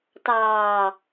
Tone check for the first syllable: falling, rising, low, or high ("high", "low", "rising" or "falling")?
low